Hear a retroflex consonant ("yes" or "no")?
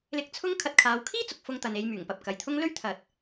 no